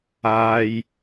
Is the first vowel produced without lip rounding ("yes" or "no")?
yes